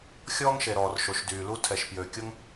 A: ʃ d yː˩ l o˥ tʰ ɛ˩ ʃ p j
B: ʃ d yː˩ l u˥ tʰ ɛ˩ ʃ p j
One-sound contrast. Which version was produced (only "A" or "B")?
B